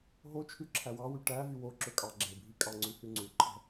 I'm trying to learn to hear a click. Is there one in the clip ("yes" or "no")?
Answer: yes